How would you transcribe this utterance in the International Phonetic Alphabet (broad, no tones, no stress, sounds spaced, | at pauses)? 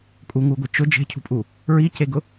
kʼ u ŋ u ɡʷ ɛ t͡ʃ ʊ d͡ʒ e̤ cʰ ṳ pʼ u | ɹ i c e ɡ ʊ